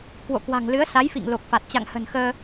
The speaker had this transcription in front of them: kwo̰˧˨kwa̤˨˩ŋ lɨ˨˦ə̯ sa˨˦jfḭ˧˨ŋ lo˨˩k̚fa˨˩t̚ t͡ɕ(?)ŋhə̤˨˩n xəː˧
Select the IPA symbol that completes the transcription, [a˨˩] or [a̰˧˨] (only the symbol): a̰˧˨